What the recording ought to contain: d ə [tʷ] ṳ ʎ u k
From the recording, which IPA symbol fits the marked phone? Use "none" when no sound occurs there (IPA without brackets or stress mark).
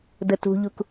t